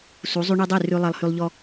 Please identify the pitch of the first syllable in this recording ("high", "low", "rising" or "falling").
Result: rising